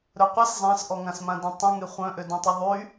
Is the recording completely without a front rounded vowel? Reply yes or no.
no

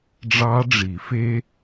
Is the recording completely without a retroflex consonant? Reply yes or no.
no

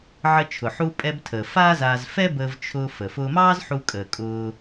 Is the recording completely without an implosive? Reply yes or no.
yes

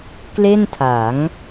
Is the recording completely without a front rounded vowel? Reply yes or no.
yes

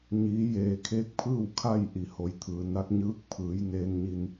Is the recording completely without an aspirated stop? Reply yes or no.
no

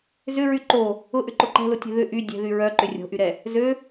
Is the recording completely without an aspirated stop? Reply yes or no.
yes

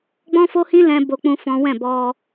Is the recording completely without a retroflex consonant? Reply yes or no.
yes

